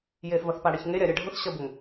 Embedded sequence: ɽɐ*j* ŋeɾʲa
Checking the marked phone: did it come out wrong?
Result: yes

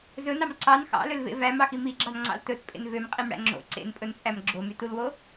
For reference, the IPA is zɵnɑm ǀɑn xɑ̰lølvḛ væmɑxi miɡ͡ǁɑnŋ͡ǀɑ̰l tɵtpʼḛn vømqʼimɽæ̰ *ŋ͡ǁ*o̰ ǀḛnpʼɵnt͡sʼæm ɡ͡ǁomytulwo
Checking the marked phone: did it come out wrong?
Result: no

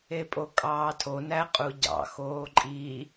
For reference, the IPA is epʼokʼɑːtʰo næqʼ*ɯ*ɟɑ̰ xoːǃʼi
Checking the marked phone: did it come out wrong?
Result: yes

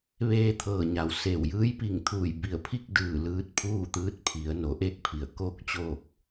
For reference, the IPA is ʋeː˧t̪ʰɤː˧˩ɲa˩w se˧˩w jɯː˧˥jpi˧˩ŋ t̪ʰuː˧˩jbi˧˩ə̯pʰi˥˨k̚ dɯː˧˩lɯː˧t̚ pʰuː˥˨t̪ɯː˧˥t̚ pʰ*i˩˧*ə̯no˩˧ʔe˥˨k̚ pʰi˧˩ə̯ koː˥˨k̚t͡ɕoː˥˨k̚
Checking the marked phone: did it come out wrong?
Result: no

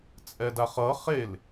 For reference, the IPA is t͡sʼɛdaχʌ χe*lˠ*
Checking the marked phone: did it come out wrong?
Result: yes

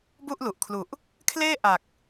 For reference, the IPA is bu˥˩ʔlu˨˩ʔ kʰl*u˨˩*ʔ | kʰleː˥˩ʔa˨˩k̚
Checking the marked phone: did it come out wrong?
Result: no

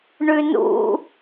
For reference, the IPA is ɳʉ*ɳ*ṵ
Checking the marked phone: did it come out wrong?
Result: yes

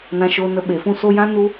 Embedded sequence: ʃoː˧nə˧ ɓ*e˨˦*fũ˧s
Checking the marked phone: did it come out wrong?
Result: yes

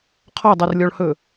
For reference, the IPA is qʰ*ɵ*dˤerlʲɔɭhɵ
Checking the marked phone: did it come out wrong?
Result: yes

